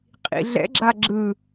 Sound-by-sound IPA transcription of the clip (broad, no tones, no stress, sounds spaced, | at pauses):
qʼ ḭ ɮ ɛ̰ ɡ͡ǁ a ɡ͡ǁ ɯ